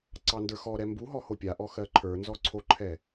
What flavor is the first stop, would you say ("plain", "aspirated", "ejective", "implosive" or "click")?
click